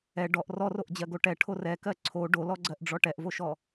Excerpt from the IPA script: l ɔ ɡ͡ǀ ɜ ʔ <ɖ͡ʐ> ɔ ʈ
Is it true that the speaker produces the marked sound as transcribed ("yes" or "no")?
yes